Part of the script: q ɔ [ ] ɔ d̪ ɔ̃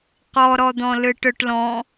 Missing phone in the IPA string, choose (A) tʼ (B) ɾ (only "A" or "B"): B